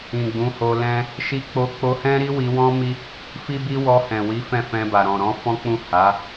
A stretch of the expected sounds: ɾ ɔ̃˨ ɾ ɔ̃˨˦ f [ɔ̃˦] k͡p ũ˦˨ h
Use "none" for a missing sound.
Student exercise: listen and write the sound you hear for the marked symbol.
ɔ̃˦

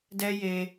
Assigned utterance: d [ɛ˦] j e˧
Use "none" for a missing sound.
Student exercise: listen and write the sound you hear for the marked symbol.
ɛ˦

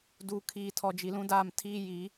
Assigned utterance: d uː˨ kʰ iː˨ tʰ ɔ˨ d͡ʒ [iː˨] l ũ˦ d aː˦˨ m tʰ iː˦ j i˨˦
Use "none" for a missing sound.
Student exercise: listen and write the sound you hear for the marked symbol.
i˨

